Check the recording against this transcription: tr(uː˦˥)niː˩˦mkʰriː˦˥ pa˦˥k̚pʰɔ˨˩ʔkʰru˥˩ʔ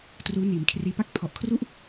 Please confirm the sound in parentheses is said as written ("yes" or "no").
yes